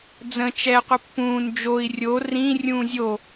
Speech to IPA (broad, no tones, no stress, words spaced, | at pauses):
d͡zə̃ t͡ʃɛ qʷəpːũːn d͡ʒoi̯ rʲo rĩ rʲũːzʲo